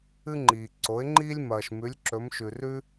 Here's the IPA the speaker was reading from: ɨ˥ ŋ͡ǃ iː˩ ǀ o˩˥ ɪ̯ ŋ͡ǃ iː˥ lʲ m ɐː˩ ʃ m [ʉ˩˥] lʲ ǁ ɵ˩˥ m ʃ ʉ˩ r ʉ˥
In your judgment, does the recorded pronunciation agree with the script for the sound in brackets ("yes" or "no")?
yes